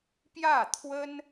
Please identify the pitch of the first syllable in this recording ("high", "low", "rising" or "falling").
falling